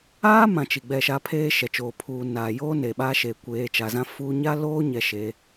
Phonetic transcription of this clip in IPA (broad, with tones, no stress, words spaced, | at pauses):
aː˦mã˨ t͡ʃi˨ɡ͡bɛ˦˨ʃa˦ pʰeː˦ʃɛ˨t͡ʃoː˨ pʰuː˨naː˨joː˦ neː˨ɓaː˦ʃeː˨ kʷeː˨˦t͡ʃa˨zã˦ fuː˦ ɲa˦loː˦ ɲɛ˨ʃe˨˦